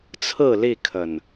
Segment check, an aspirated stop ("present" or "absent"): present